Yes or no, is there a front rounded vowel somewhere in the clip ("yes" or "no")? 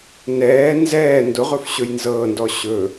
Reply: no